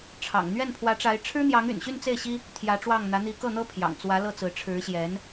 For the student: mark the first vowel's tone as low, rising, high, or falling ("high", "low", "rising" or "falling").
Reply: low